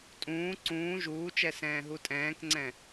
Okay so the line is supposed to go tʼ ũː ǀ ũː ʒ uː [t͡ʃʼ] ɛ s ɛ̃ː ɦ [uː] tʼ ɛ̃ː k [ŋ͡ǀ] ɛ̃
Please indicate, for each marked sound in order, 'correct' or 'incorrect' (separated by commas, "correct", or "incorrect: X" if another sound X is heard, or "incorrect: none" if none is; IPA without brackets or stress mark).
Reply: incorrect: t͡ʃ, incorrect: u, correct